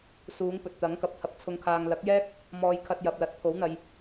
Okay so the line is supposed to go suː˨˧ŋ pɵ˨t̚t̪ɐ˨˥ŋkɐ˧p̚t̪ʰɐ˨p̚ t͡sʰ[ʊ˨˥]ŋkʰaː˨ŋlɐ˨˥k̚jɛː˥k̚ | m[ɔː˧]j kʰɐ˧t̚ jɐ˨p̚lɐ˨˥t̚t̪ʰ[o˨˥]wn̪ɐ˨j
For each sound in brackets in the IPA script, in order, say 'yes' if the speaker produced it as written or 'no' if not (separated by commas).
no, yes, yes